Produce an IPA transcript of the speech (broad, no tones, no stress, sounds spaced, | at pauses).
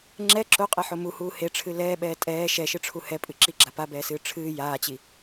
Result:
ŋ͡ǁ ɛ ǁ o qʼ e ħ o m u h uː h e ʈ͡ʂʰ ɨ l ɛː ɓ ɛː tʼ ɛː ʃ ɛ ʃ ɨ ʈ͡ʂʰ u h ɛ pʼ ɨ ǁ i ɡ͡ǁ a p a b ɛː s ɨː ʈ͡ʂʰ ɨː j aː t͡ɕ i